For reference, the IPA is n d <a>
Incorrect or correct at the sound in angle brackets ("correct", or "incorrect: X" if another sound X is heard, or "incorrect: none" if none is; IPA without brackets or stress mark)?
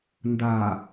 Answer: correct